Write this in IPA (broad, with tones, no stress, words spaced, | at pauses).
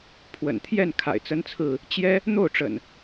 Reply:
pʰwə̰˨˩nt̪ʰjɛ˥˨n kʰa̰˨˩ɪ̯t͡sə˦nt͡sʰɹ̩˥˨ | t͡ɕjɛ˦ | n̪o˥˨ʊ̯ʈ͡ʂə̰˨˩n